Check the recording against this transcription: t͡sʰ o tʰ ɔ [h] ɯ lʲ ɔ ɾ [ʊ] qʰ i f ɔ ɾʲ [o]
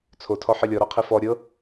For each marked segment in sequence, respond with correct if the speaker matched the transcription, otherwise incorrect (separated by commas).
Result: incorrect, incorrect, incorrect